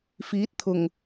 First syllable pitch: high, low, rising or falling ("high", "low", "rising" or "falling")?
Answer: rising